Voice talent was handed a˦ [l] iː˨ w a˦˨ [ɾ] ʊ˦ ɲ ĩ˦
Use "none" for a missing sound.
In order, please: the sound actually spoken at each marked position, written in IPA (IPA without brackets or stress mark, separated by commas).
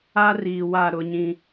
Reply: r, ɾ